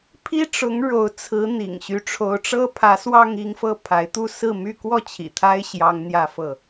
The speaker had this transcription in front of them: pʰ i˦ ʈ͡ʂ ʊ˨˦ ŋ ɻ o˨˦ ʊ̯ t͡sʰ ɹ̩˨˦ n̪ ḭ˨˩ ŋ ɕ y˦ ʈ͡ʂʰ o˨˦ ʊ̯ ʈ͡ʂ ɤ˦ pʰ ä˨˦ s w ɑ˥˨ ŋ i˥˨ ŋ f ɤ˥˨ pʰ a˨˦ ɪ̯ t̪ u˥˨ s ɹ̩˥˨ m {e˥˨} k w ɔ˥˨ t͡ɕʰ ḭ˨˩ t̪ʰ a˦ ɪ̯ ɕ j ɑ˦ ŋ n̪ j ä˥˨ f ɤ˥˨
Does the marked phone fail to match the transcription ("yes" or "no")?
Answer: yes